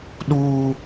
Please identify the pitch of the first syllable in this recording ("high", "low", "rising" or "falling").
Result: high